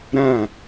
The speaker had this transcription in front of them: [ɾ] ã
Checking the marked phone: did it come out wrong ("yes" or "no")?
no